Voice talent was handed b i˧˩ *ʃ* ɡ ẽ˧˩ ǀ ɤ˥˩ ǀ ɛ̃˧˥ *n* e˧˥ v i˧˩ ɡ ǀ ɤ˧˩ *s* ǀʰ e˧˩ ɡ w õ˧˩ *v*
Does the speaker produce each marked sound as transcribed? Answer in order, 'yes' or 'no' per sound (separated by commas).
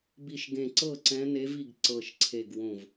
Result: yes, yes, no, yes